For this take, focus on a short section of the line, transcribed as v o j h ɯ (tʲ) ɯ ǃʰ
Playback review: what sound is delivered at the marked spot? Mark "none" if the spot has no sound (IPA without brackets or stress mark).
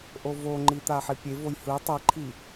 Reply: tˤ